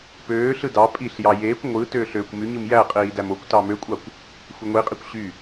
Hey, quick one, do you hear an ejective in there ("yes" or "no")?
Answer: yes